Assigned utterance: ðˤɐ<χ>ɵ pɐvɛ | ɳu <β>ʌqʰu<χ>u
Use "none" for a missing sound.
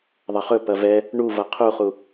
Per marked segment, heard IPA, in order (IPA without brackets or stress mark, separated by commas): χ, v, χ